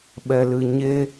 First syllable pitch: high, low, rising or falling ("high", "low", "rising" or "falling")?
low